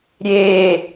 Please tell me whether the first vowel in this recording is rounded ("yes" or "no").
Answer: no